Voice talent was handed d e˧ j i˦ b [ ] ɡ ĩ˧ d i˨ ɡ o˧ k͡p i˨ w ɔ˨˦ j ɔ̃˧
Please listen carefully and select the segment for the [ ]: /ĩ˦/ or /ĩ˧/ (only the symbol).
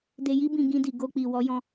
ĩ˧